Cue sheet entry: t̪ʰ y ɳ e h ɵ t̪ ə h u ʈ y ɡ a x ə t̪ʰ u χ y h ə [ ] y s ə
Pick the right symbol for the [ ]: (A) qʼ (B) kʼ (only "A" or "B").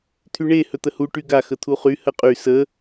A